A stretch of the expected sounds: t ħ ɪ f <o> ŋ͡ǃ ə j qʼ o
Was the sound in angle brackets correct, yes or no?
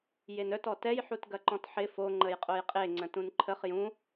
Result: yes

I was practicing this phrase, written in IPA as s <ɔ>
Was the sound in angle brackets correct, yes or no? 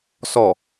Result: yes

